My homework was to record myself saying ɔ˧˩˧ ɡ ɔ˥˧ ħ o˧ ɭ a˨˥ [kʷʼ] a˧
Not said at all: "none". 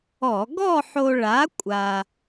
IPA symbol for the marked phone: kʷʼ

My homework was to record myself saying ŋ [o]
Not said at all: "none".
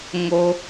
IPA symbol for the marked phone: o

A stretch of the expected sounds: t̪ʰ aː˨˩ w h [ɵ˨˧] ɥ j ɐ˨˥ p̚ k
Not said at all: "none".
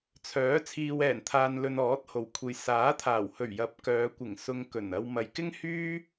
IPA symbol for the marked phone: ɵ˨˩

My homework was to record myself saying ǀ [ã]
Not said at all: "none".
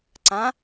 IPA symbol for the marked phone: ã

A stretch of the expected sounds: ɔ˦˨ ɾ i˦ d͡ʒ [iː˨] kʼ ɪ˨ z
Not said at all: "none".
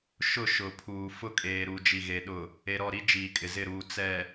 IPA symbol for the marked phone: iː˨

